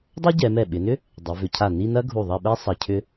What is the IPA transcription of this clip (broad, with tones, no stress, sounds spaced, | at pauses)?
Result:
dˤ ɐ˥ ɟ ɛ˩˧ m ɛ˧˩ ɓ ɪ˩˧ n ʏ˥ | dˤ ɪ˩˧ v ʏ˩˧ cʰ a˧˩ n i˥˧ n ɐ˥ ɡʱ u˧˩ ðˤ ɐ˥˧ ɓ ɛ˥ sˤ ɐ˧ cʰ ʏ˥